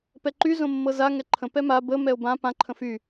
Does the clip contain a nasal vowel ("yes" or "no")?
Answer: yes